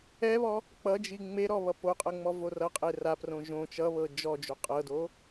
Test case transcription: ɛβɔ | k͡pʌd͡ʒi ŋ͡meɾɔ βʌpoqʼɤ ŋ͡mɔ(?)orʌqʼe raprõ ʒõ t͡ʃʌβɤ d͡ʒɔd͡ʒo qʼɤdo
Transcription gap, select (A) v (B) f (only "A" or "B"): A